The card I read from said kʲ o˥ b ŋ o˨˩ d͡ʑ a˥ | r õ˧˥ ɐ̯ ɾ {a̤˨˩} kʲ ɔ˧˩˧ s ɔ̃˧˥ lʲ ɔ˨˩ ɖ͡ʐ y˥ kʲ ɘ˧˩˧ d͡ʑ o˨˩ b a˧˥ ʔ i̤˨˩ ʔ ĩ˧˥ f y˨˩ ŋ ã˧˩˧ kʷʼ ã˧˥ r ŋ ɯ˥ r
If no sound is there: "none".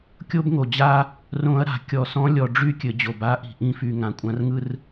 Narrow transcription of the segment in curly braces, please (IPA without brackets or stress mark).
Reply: a̤˨˩